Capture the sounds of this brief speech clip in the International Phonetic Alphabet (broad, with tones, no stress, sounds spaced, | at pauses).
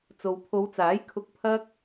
t͡s o˨ w pʰ o˨˧ w t͡s aː˨˥ j kʰ ʊ˧ k̚ pʰ ɐ˥ k̚